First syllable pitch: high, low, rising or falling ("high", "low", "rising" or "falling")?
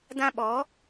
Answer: high